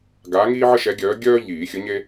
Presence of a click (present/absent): absent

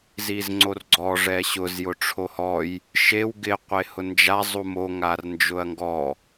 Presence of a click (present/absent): present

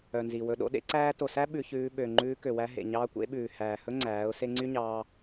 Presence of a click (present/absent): present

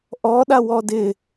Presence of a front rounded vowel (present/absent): absent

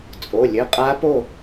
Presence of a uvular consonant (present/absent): present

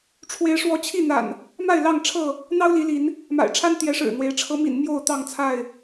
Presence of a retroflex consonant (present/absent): present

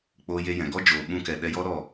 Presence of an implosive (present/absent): present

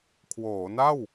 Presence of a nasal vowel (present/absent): absent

